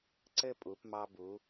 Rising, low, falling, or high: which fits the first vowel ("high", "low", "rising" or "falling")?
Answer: high